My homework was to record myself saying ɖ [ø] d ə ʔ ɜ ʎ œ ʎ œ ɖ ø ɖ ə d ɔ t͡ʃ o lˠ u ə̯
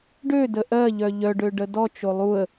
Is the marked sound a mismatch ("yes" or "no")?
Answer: no